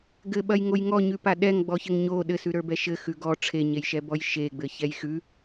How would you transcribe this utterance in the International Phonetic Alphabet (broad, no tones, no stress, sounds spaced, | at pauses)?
ɡ ɘ ɓ ɐ j ŋ o j ŋ ɔ ɲ ʉ p a ɗ ɛ ŋ ɡ͡b ɔ ç ɘ ŋ ɲ o ɗ ɘ s ʉ ɾ ə˞ b ɛ ʃ ɘ x ʉ ɡ ɔ ʈ͡ʂʰ e ɲ e j ʃ ɛ b ɔ j ʃ e ɡ͡b ɘ ç ɛ j x ʉ